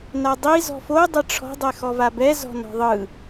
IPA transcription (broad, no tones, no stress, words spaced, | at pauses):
nadˤi zɔ̤fo dˤɛʈ͡ʂʰɔ̤ dˤɛxɔvabɛ zɔ̤nɔ̤ðˤɯ